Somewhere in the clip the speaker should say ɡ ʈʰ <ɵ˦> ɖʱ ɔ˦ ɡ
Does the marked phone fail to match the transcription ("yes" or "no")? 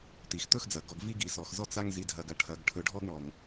yes